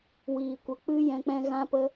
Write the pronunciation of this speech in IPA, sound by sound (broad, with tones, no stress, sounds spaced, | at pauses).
w iː˨ kʷ ə˨ k͡p ɨ˦ j ɛ̃˧ k͡p ɛ̃˦ ɣ ã˦ p ə˦